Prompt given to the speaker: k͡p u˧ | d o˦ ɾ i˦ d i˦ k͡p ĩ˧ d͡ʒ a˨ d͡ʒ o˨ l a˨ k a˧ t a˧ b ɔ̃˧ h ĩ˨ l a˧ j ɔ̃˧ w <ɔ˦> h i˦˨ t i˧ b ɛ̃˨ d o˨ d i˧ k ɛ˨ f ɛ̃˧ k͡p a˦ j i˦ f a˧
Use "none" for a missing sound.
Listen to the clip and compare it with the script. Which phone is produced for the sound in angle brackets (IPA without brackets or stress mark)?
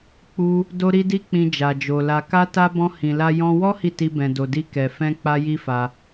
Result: ɔ˦